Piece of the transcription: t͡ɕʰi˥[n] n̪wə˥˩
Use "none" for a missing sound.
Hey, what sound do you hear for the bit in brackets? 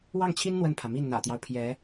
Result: n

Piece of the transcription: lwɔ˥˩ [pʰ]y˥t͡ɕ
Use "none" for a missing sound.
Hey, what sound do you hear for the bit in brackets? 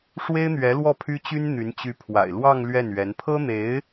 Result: pʰ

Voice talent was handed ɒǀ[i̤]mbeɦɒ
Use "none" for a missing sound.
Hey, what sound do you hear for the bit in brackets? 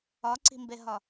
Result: i̤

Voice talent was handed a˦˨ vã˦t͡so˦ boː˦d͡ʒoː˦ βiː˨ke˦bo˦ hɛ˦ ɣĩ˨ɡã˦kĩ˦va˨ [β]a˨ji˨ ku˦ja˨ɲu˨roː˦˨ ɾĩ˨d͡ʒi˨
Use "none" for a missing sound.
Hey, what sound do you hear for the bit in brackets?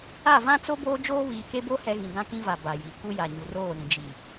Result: b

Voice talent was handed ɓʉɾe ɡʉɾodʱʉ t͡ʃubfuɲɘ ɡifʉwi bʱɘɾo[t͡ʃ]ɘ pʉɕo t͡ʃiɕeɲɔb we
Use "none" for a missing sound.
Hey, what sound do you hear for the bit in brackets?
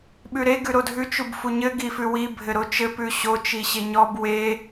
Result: t͡ʃ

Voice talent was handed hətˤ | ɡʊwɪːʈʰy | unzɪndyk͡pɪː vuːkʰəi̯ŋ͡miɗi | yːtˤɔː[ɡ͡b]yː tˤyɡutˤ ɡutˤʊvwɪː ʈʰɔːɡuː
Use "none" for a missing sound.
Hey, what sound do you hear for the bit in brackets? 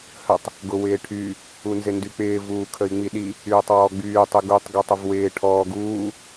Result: ɡ͡b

